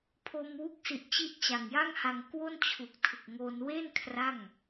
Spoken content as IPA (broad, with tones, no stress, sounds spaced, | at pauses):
pʰ o˧ m w u˦˥ k̚ s i˨˩ ʔ t͡ɕ i˦˥ ʔ t͡ɕ a˨˩ ŋ j a˥˩ ŋ h a˧ ŋ k w o˥˩ n t͡ɕʰ u˨˩ k̚ tʰ ɯ˨˩ k̚ ŋ o˧ n w e˥˩ n kʰ r a˥˩ ŋ